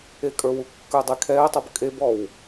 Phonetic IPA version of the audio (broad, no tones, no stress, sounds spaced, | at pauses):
e kʼ ə˞ w u kː ə˞ dˤ e kʰ ɛ ə̯ tˤ o b kʼ e b ɔ w